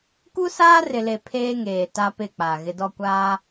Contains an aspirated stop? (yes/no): yes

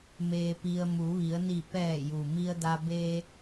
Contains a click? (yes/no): no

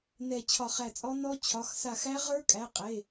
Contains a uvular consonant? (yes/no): yes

